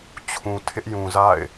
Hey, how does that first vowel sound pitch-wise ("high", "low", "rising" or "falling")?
low